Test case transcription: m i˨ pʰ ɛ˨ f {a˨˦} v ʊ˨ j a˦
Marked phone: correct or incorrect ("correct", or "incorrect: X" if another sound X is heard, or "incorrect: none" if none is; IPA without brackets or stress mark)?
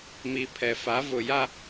correct